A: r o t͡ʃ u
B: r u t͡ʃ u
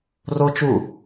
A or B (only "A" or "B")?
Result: A